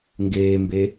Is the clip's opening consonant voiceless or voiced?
voiced